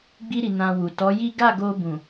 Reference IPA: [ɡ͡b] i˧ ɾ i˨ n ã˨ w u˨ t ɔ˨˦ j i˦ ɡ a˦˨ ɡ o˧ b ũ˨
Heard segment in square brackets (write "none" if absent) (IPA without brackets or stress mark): ɡ͡b